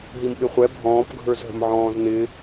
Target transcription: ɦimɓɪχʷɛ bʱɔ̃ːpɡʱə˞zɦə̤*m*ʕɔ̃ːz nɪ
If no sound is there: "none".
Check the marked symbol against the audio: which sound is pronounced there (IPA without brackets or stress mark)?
m